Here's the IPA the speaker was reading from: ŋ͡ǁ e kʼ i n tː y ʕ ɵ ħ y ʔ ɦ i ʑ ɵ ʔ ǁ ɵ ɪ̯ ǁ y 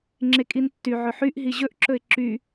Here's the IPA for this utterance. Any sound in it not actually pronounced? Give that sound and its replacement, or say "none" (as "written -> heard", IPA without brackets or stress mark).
none